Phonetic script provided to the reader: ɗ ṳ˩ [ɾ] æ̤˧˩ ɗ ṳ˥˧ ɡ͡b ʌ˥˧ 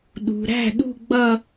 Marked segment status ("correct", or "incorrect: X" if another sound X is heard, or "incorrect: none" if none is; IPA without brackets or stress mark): correct